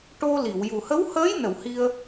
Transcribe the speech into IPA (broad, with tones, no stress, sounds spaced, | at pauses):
ʈ o˧ l i˨˩˨ w j u˨˩ h ə˧˥ w h əː˧˥ j n ə˨˩˨ w h i˧ ə̯